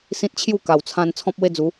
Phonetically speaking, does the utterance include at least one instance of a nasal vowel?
yes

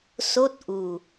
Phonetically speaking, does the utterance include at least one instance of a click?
no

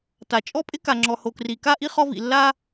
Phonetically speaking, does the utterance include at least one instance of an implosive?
no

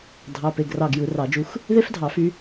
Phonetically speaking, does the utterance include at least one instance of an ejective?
no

